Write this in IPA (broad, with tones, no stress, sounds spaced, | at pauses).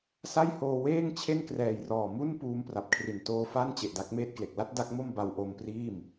s a˥˩ j h oː˧ w eː˥˩ ŋ t͡ɕʰ e˥˩ n k r ɛː˨˩ j r ɔː˨˩ m u˥˩ n p uː˧ m p r a˨˩ p̚ kʰ r i˨˩ n t oː˧ f a˥˩ n t͡ɕ e˨˩ ʔ d a˥˩ k̚ m eː˥˩ t̚ k l e˨˩ k̚ l a˥˩ t̚ d a˦˥ k̚ m o˥˩ m b a˧ w ʔ o˧ m p r iː˥˩ m